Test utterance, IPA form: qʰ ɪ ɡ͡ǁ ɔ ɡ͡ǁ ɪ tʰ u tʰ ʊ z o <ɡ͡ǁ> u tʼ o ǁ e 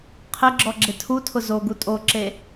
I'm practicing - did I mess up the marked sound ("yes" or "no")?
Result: yes